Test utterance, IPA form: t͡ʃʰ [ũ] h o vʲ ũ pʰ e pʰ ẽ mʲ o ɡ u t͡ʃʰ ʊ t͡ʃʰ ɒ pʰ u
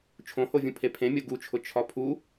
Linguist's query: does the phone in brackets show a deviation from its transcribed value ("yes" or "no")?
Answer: yes